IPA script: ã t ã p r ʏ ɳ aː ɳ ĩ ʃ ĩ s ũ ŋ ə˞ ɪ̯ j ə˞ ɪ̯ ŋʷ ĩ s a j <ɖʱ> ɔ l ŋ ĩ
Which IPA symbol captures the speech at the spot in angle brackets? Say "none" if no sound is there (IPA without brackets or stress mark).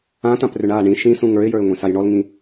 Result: ɳ